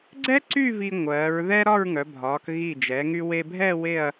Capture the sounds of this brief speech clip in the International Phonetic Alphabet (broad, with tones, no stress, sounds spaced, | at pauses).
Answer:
ɡ͡ǀ ɛ˥ ǀ y˥˧ v i˧ ŋʷ ɜː˩˧ ɹ ð ɛ˥ ɾ ɒ˥˧ ɹ ŋ œ˩˧ bʱ ɒː˩˧ k ɣ i˧˩ d͡ʒ ɛ˩˧ ŋ y˧ w e˧ bʱ ɛ˥˧ w e˥˧ ɐ̯